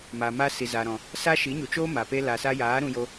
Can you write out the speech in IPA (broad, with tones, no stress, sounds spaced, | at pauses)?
m a˨ m a˧ s i˨ z aː˨ ɾ ɔ̃˨ | s a˦ ʃ i˨˦ ɲ u˨ t͡ʃ oː˦ m a˨ p e˦ l a˨ s a˧ j aː˨˦ ɾ ũ˧ j o˧